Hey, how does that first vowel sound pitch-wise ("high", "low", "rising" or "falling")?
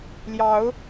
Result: rising